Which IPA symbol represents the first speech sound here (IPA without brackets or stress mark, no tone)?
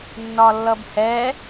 nː